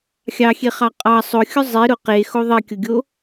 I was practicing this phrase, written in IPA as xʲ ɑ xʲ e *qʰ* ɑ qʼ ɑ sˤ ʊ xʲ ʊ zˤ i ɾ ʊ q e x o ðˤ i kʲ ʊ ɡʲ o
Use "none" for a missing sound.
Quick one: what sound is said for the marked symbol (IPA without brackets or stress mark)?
χ